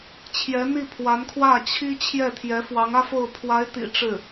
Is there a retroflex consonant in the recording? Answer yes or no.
yes